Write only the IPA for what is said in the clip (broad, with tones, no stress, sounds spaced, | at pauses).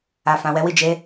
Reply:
a˨ f ã˨ w ɛ˨˦ w i˦˨ d͡ʒ e˨˦